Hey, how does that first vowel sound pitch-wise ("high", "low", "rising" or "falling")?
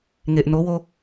low